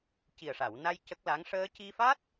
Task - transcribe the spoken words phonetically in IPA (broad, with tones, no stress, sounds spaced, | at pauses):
c i˨˩ ə̯ ʂ a˨˩˨ w n a˧ j c ə˦˥ k̚ l a˧˥ ŋ ʂ əː˧ c i˧ f a˦˥ t̚